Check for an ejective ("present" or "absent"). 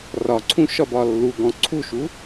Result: absent